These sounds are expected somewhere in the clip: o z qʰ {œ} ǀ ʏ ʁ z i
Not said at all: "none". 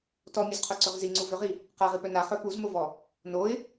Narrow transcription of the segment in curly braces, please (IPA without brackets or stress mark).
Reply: œ